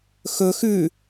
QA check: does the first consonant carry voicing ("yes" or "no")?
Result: no